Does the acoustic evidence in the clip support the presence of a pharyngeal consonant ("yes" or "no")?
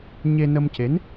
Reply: no